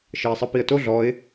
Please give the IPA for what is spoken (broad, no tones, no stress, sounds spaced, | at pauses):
ʃ ɤ ɪ̯ sˤ ɤ p i ə̯ t o ɮ ɔ ɪ̯